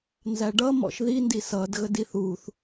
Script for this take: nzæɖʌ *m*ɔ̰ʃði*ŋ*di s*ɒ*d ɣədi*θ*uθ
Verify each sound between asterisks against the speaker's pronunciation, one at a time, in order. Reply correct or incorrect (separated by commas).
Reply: correct, incorrect, incorrect, correct